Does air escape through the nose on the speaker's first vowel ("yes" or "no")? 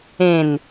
yes